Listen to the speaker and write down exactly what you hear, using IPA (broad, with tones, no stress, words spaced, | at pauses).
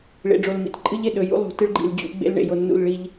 ɭḛ˨ɖ͡ʐo˨lmḭ˨t ǃʼɨ˦ʎe˨ ɗɵ˨jṵ˦ lˠṳ˨tɨ˦ɭɡ͡ǃḭ˨l d͡ʑṵ˦ ɡ͡bḛ˦l ɳḛ˨ jo˨nːṵ˦˨l ɭi˦ʎ